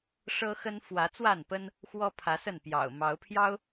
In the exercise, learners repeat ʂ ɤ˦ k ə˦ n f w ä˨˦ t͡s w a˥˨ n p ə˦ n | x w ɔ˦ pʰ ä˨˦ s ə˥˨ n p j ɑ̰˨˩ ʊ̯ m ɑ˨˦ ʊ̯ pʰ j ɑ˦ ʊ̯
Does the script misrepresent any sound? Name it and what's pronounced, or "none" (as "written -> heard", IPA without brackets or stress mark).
k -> x